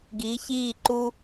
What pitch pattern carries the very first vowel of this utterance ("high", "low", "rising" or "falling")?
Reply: rising